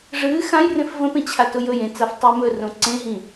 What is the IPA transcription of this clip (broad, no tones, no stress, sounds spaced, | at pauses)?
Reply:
ʐ ɨː x ã j r ẽ f v ə̃ p ẽ t͡ɕʰ a t ʊ j ɵ j ẽ t͡s a f tˤ ɨː m ɵ r õ ǀ ẽ ɦ ĩ